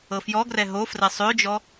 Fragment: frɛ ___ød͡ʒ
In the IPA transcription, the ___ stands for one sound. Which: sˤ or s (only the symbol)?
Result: sˤ